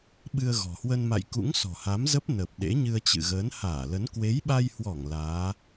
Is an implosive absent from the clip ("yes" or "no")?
no